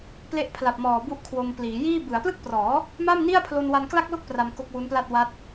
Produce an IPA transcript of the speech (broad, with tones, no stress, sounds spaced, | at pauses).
p l e˦˥ ʔ pʰ l a˨˩ p̚ m ɔː˨˩ b u˦˥ ʔ kʰ w o˧ m p l iː˩˦ j iː˥˩ b ɯ˩˦ a̯ p l ɯ˥˩ k̚ p r ɔː˩˦ | m a˥˩ m n i˥˩ a̯ pʰ l o˧ n w a˧ n k l a˥˩ k̚ l o˥˩ k̚ p r a˧ m k o˦˥ k̚ w u˦˥ n p l a˥˩ t̚ w a˦˥ t̚